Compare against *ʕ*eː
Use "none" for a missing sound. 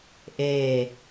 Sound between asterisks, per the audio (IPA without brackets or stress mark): ʔ